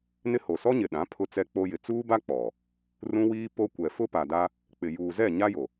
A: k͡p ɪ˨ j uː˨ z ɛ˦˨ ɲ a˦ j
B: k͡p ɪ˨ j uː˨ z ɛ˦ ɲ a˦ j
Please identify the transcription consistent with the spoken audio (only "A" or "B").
A